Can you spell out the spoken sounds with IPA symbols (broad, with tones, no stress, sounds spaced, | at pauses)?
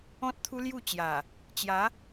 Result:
ɔ̃˦ t̚ t̪ʰ u˦ l j u˥˧ t͡ɕ j a˨˩ | t͡ɕ j a˨˦